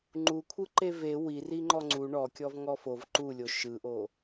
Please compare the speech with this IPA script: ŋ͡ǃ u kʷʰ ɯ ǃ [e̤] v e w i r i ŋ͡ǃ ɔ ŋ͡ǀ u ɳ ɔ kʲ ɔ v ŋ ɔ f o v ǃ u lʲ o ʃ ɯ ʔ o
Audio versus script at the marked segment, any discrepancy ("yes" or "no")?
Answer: yes